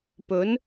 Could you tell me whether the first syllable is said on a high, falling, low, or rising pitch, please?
rising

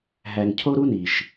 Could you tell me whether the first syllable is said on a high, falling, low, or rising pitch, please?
low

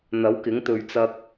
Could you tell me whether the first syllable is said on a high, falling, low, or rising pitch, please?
rising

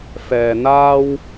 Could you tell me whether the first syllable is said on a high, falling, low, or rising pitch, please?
low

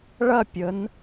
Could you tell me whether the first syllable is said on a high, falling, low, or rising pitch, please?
falling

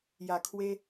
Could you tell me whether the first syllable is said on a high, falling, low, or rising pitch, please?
low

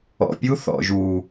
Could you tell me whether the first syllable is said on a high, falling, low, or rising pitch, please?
low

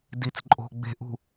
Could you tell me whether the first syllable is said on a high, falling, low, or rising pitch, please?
low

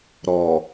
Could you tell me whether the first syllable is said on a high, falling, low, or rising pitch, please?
low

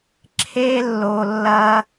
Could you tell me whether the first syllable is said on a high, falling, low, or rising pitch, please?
high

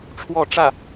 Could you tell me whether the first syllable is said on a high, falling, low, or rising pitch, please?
falling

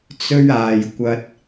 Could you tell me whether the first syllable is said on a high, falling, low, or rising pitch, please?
high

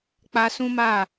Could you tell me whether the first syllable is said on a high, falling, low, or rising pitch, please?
high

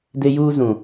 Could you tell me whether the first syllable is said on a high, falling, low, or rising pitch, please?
high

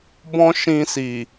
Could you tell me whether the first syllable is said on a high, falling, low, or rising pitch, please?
high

